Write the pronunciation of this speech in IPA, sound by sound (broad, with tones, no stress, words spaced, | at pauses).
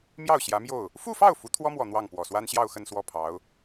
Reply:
mjɑ˥˩ʊ̯ ɕjä˧˥mjo˥˩ʊ̯ | fu˥˧fɑ˥˩ʊ̯ fu˧˥t̪ʰwɔ˥mwɔ˨˩ n̪wɑ˥˩ŋ pwɔ˨˩swa˥nɕjɑ˥˧ʊ̯xə˥˧n swɔ˥˩pʰɑ˧˥ʊ̯